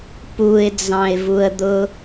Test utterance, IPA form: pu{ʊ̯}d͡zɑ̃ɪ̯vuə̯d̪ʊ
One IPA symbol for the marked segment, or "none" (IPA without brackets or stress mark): ɪ̯